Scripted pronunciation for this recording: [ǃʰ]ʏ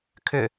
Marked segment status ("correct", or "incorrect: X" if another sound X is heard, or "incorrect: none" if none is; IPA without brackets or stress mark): incorrect: kʰ